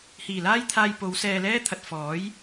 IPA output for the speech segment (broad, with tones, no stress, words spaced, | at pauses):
hiː˨˩laː˥jt̪ʰaː˧j po˨˧w sɛː˧lɛː˥ t̪ʰɐ˨t̚fɔː˨˥j